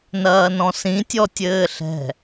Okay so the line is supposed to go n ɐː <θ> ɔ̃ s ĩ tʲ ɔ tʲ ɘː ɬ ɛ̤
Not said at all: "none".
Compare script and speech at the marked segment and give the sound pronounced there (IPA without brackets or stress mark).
n